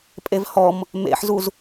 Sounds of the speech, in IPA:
pʼevhɔm | mḛħzuz

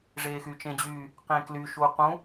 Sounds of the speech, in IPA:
ʐeːxyːt͡ʃẽd͡ʑyː | qẽkly ʃuqũ

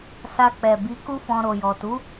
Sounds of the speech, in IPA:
sa˧k͡pɛ˨ bi˨˦ku˦fɔ̃˧ ɾo˨jɔ˨tu˨˦

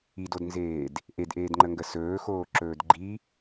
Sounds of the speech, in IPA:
idodnzeːd | ʔedʔeːdŋ͡ǃəŋɡə sɵːxoːǁɵːd ɡ͡ǃi

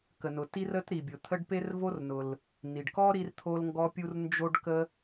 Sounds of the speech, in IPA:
kə˩nʊ˩ti˥ rə˥tɾi˩bʲʊ˩t̪ʰə˥ɖ pe˥rvo˥rnʊ˩l | ni˩ɖkɔ˥ ɾi˥rt̪ʰo˥lŋɡɔ˥pʲu˥r nd͡ʒo˥ɖkə˥

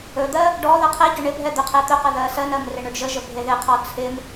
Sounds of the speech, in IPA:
ɵd̪ɜ | ɖɔ ðɜqʰɛɟɵ ɳɪbʱɛ d̪ɵqʰɛt̪ɵqə ðɜsɜnɜm rɪɳɵɖʒəʒə bʱeðɪqʰɔ t͡sʰɪm

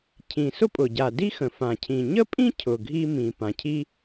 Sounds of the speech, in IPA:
cʰĩ˩sʊ˥pʼʊ˩ ɟa˩di˥ xə̃˩fã˩ cʰĩ˩ ɲə˥pʼĩ˥cʰʊ˩ ɡʱi˥mĩ˩ pã˩cʰi˥

